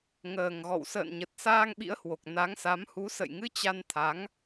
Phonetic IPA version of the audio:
ŋəː˨˩ŋ ɣɔ̰˧˨wsə̰ː˧˨nɲə˨˩t̚ saː˧ŋɓḭ˧˥ə̯hwo˨˩k̚ na˨˦ŋsa˨˦m hu˨˦sə̰˧˨jŋɨ˧ t͡ɕa˧nt̪ʰa˨˦ŋ

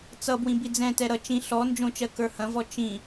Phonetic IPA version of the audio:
t͡sʌbwĩ bid͡zɛ̃tɛ ɾʌ t͡ʃĩ ɬɔ nd͡ʒõt͡ʃɜ kə˞hɐ̃vɔ t͡ʃĩ

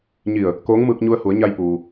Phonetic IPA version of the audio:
ɲi˧˩ə̯ | koː˧˥ŋmɯː˧k̚ɲu˧ə̯ hu˩˧ə̯ɲa˧jpuː˩

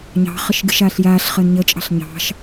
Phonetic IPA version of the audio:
ɲɑ̤χəʃ ɡɨʃaːɬjaːɬχəːn ɲət͡ʃʼɑ̤ɬ ɲɑ̤ʃ

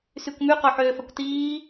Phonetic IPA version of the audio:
sykʷmy qoħøːfɐkʷtiː

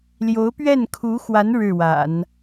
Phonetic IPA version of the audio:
ljo˧˥ʊ̯pɥɛ˥˩nkʰu˧˥xwa˧˥n ɻɻ̩˥˩ wa̰˨˩˦n

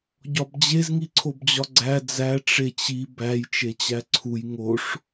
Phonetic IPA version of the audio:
ɟɒbd͡ʑez ŋiǀʰobd͡ʑɒɡ͡ǀæ d͡zæ ʈ͡ʂet͡ɕi bæj t͡ʃet͡ɕæǀʰuj ŋoʂ

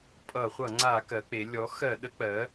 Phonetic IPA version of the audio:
pʼʌ˧˩˧χʷʌ˧˩˧ ŋ͡ǀa˧˩˧ kɜ˩˧k͡pe˩˧ lʲɔ˩˥xɜ˧˩˧ ɗə˩˥k͡pɜ˩˥

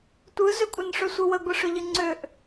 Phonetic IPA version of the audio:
tʷɯzʏ kʷʼɨnʂʏsʷɯwə ɡʷɨʂʏʎɨŋ͡ǀʏʔ

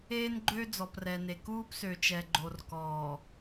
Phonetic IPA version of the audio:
eː˦nɡ͡ǃø˦ d͡zɔ˨prɛ˨ne˨ kuː˦psø˨ t͡ʃɛ˨ɡ͡ǃo˨r kɔː˨

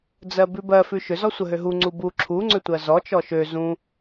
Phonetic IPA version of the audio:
d͡zɜbʉbɜ fʉʃʏ zɔsʷəɦøɦu ŋ͡ǀubu ǁʰu ŋ͡ǀʏtʷɜzɔ t͡ʃɔʃø zũ

